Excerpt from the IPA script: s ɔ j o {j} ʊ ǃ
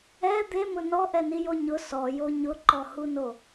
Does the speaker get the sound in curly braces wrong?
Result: yes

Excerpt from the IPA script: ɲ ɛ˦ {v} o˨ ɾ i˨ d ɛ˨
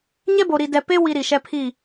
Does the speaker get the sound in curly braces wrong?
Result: yes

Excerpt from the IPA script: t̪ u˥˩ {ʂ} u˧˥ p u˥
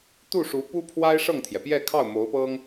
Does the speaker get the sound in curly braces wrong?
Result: no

